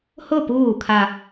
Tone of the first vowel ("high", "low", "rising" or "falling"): falling